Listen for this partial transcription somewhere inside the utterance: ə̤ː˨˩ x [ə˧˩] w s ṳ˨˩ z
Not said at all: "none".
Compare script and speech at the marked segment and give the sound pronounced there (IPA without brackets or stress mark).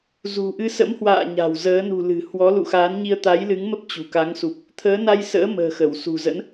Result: ə˧˩